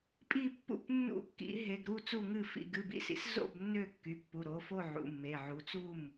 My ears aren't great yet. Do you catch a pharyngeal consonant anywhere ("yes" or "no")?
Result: yes